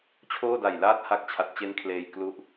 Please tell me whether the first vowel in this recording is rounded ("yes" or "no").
yes